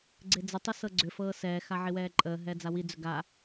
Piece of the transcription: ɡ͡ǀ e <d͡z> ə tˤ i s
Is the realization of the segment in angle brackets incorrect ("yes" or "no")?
no